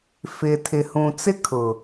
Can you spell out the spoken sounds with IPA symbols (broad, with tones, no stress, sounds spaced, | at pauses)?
f ɪ˨ tʰ ɪ˨ h ũ˨ t͡s ɪ˦ kʰ ʊ˨